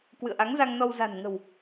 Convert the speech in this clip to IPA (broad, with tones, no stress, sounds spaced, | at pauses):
k w ɨ̰˧˨ ə̯ ʔ a˨˦ ŋ z a˧ ŋ n ɔ˧ w z a̤˨˩ n ŋ ə̤˨˩ w